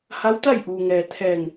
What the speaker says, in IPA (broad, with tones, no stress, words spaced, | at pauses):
ha˧˥wt̪a˥˨jʔuː˩ŋɛː˩ t̪ʰɛː˧˩ŋ